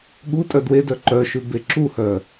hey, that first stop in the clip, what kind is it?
implosive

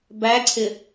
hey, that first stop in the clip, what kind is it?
plain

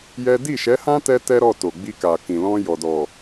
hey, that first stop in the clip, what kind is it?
plain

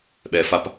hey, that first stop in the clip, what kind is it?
implosive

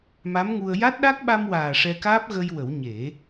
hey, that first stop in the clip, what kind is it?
plain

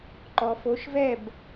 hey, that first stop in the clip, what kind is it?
click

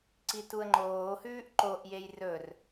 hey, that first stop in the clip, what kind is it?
click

